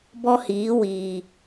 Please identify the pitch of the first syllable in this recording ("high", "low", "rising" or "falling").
high